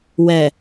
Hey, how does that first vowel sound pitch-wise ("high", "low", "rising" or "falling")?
low